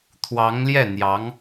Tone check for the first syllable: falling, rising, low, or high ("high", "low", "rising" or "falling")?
rising